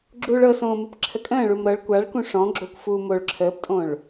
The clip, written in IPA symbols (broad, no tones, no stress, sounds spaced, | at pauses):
ɡ͡ǁ uː ɭ ɤ s õː m ɯ p ǁʰ ə kʼ ə̃ː ɭ u m ɾ ɤ ɭ kʷ a ɭ k ũ ʂ ɔ̃ ɡ͡ǁ o kʷ f uː m o ɭ ǁʰ əː p tʼ õ ɭ